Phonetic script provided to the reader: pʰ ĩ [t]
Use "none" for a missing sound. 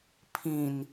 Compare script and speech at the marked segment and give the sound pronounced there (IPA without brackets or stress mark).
n